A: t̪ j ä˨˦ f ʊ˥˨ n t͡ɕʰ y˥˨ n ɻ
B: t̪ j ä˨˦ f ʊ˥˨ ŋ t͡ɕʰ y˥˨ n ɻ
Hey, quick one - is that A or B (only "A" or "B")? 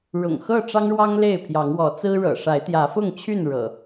B